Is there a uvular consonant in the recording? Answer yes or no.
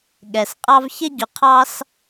yes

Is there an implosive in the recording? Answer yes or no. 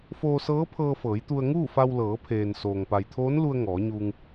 no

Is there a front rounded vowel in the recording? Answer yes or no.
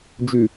no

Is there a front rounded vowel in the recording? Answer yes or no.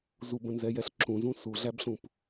no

